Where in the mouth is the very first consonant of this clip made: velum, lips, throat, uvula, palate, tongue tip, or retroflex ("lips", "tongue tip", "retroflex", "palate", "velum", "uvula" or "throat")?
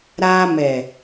tongue tip